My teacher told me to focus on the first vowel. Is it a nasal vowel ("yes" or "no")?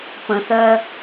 yes